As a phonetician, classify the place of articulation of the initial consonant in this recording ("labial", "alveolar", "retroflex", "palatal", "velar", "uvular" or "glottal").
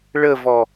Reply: retroflex